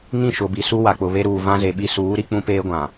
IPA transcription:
ŋ ĩ˦˨ ʃ ʊ˨ b i˨ s u˦ w a˨ k͡p ʊ˨ β e˦ ɾ uː˨ v ã˦ z e˨ ɓ i˦ s uː˨˦ ɾ i˦ k͡p ũ˦ p eː˦ ɡʷ ã˨

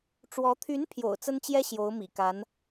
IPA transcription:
ʈ͡ʂ w ɔ˧˥ t̪ʰ y˧˥ n pʰ j o̰˨˩ ʊ̯ t͡s ə˥ n t͡ɕ j ɛ˥ ɕ j o˧˥ ʊ̯ m ḭ˨˩ k a˧˥ n

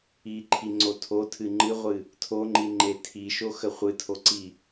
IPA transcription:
i ǃʰ i ŋ͡ǀ o tʰ o tʰ ɨ ŋ͡ǃ ɨ ʁʷ ɨ | tʰ o ŋ͡ǃ i ŋ͡ǃ e tʰ i ʃ o x ə χʷ ɨ tʰ o ǀ i

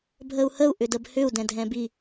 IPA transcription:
bʱ ə u̯ h ə u̯ ʔ ʏ d ə b h ʏ u̯ d ɛ̃ dʱ ɛ̃ b i

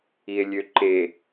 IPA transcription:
i e̯ lʲ ø ǃ e

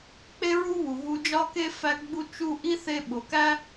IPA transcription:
k͡p e˥ ɹ u˥ β u˩ ɣ u˧ d͡ʒ ɒ˥ k e˥ f æ˧ ɡ͡b u˧ t͡ʃ u˧ ʔ i˥ θ e˧ ɓ o˩ k æ˥

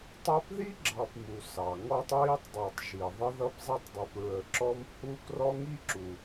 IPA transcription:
tˤ æ˦ p ð i˥ ɡ͡ǁ ɑ˨ p m u˩ s ɑ˩ ŋ ɔ˦ tˤ ɹ i˦ tˤ dˤ ə˞˨ tˤ ʒ i˩ ðˤ ə˦ ð ʌ˦ p zˤ ɛ˦ tˤ dˤ i˨ p ɹ ə˨ ǁ ɔ˦ m h u˦ k r ɔ˥ ŋ i˥ ǁ u˨

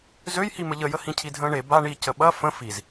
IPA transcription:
z ø j h i m ə ʎ ə j ə h ĩ cʰ i dʱ ə̃ː ɳ e b a ɳ i c ə ɓ ɐ f ə̃ f i z

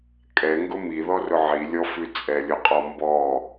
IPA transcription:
kʼ ɛ ŋ ɡ ʊ m i ð ɔ r ʊ ʕ i lʲ ɔ f ʉ t͡sʼ ɛ lʲ ʊ qʼ ɔ m b ɔ

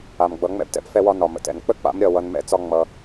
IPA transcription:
a˨ m ɡ͡b ʌ˨˦ ŋ͡m ɛ̰˦ b t ɛ̰˦ p f ɛ˦ w ɒ˦ n ɒ˨ m ə̰˨ t ɛ̰˨ n k͡p ə˦ k͡p a̰˨˦ m ɾʲ ʌ˦˨ w ʌ˧ n m ɛ̰˦ t͡s ɒ˦ ŋ͡m ʌ˧

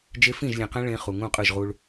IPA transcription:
d͡ʒ e˦ f ĩ˦˨ ʒ lʲ ɛ̃˨ q ɛ̃˦ ɭ ẽ˦ χ u˨ ŋ ũ˦˨ qʼ ɯ˦˨ ʒ ʁ u˦ ɭ

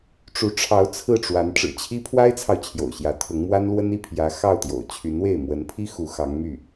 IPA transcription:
ʈ͡ʂ u˧˥ ʈ͡ʂʰ ɑ˧˥ ʊ̯ t͡sʰ ɹ̩˥˩ ʈ͡ʂ w a˧˥ n ʈ͡ʂ ɻ̩˨˩ t͡ɕʰ i˥ pʰ w a˥ ɪ̯ t͡sʰ ɑ˨ ʊ̯ t͡ɕʰ j o̰˨˩ ʊ̯ ɕ j ä˧˥ t̪ʰ ʊ˧˥ ŋ m w a˥ n l w ə˥ n i˥˩ pʰ j ä˧˥ x ɑ˥˩ ʊ̯ t̪ j o̰˨˩ ʊ̯ t͡ɕʰ y˧˥ n w e˥˩ ɪ̯ m w ə˧˥ n pʰ i˥ x u˧˥ x ɑ˧˥ ŋ m y˥˩

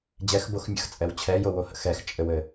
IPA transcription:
d͡ʑ ɛ x b o x mʲ ə̰ x t͡sʼ ɛ w t͡ɕʰ ɛ j o w o h ə̰ x ɛ x t͡ʃʼ ɘ w ɘ

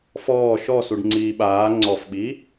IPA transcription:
f ɔː ʃ ɔ s u ɖ ŋ͡ǀ iː ɓ aː ŋ͡ǀ ɔ f ɓ i

